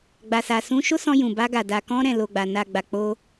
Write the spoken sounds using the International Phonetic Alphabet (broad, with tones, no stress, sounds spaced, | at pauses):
ɡ͡b a˨ s a˨ s ũ˧ ʃ o˦ s ɔ̃˧ j ũ˨ b a˧ ɡ a˨ d a˨ k ɔ̃˧ ɾ ɛ̃˨ l o˨ ɡ͡b a˨ n a˨ ɡ͡b a˨ k͡p o˧